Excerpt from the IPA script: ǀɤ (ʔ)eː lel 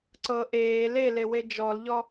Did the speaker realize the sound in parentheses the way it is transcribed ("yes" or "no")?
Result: yes